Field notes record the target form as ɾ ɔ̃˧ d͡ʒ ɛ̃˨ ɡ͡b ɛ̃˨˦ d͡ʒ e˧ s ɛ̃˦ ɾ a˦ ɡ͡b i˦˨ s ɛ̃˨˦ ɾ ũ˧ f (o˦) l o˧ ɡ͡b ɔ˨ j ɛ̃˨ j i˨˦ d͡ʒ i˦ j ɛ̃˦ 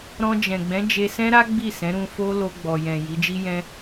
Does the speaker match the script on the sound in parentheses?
yes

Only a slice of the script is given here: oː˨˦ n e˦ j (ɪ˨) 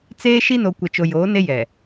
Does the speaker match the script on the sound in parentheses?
no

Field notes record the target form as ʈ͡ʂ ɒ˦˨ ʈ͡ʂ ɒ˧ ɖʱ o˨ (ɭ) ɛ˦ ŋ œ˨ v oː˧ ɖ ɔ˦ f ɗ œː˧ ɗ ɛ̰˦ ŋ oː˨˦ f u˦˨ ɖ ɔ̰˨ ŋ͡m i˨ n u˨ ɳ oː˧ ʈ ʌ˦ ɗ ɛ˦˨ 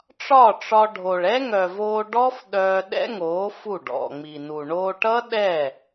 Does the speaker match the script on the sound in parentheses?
yes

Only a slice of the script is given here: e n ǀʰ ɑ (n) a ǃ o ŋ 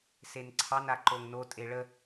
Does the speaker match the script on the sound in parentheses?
yes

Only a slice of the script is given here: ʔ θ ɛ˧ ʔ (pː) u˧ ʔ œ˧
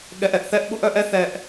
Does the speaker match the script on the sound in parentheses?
no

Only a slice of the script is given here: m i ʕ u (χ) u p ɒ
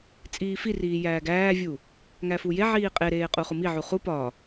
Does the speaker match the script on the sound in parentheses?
yes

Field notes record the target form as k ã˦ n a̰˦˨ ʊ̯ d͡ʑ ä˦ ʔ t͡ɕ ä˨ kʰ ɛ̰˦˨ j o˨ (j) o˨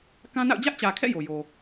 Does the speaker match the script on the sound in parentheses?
yes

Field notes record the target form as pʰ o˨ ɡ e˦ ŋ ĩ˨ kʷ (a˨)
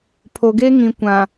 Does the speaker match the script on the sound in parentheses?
no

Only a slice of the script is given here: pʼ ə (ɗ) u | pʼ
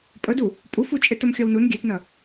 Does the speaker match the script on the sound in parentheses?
no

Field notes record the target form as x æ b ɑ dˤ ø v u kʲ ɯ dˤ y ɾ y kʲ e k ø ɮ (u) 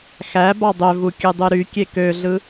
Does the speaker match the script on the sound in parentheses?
no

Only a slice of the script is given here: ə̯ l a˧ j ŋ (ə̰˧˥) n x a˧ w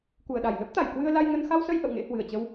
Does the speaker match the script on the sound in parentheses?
no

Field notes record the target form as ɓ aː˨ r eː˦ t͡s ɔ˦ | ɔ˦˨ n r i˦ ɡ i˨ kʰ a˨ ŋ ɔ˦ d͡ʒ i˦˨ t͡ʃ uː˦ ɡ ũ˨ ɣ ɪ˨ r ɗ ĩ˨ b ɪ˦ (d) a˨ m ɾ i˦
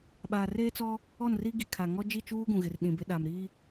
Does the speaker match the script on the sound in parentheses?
no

